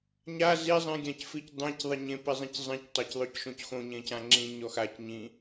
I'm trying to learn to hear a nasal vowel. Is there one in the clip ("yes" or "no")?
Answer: yes